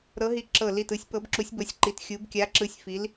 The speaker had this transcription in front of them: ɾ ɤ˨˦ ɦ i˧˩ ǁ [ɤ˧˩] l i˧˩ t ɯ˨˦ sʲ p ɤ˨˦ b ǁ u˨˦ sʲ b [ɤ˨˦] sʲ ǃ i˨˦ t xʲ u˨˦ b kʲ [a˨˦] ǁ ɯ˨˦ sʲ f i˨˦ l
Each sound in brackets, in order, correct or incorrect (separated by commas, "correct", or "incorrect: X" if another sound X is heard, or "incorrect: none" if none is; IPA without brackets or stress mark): correct, correct, correct